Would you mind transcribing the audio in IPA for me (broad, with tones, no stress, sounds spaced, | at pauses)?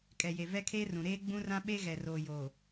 kʼ ɛ˨ j e˨ v ɛ˦ kʰ eː˦ r ũ˨ ɾ eː˦ ɡ͡b ũ˦ r ã˦ ɓ e˦ ɣ ɛ˨ r oː˨ j o˨